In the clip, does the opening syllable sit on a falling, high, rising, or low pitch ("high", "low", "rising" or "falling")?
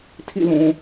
falling